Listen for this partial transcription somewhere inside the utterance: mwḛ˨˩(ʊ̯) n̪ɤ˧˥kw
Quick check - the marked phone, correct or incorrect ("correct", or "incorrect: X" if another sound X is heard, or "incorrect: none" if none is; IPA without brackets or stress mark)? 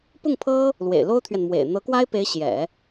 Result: incorrect: ɪ̯